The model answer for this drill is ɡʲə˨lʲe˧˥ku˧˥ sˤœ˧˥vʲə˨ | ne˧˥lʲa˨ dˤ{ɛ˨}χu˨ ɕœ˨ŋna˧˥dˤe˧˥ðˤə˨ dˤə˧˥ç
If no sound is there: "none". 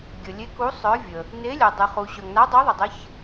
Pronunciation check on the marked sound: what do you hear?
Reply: ɛ˨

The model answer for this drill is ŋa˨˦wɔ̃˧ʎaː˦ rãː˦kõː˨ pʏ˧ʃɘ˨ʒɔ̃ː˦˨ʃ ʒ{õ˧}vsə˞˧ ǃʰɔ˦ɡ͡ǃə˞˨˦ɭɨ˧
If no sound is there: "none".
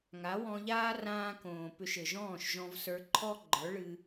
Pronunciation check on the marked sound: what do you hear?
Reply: ɔ̃˧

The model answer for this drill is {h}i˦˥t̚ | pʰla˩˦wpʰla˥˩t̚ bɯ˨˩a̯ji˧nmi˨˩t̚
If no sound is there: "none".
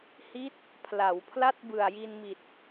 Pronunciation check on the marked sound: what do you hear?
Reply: h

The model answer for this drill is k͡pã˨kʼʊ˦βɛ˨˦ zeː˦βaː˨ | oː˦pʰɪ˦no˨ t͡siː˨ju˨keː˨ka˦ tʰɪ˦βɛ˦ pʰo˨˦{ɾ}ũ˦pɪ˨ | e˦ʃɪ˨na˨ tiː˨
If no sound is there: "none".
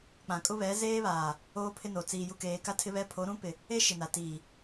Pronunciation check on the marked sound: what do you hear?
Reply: ɾ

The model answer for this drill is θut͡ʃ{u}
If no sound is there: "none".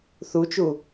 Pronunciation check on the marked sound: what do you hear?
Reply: u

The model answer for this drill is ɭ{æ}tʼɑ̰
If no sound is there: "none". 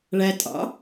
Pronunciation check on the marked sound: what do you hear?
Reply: æ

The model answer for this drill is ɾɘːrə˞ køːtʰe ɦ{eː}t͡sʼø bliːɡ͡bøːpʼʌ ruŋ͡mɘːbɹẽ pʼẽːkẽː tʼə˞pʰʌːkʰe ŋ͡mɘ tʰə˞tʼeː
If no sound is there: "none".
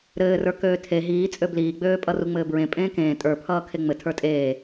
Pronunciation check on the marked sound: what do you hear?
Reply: iː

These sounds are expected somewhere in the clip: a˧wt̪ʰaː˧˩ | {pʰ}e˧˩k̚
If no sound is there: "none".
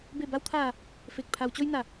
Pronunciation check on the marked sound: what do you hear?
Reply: f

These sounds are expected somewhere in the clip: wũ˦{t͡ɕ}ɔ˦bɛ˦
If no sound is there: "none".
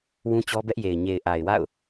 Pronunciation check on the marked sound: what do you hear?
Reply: t͡ɕ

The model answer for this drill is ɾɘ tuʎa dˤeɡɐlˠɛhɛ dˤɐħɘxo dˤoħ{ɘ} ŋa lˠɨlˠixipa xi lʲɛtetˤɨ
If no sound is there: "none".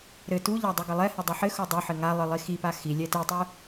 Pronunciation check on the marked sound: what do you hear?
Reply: ɘ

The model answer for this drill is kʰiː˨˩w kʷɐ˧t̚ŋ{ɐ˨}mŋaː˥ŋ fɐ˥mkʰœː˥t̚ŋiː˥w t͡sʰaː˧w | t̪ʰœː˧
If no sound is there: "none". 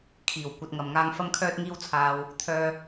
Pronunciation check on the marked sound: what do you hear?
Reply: ɐ˨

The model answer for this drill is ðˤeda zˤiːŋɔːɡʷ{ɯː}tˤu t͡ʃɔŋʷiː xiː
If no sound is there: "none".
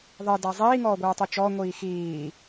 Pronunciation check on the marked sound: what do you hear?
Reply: ɯː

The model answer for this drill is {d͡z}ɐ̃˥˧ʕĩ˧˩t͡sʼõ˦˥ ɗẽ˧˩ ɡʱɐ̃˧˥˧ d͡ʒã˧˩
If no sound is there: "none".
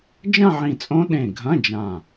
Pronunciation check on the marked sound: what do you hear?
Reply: d͡ʒ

